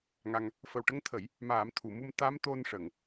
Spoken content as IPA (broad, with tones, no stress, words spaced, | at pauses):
ŋa˧ŋ | fə˨˩wʈə˧ŋt̪ʰə˨˩˦j | maː˨˩˦mt̪ʰu˨˩˨mu˧m t̪a˧˥m t̪o˧nʂə˨˩˨ŋ